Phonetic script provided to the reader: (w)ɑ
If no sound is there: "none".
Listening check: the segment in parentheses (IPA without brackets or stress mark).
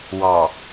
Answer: w